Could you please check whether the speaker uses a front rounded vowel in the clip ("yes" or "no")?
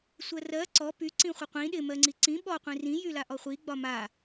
yes